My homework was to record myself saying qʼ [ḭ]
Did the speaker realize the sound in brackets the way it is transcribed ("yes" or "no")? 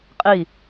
no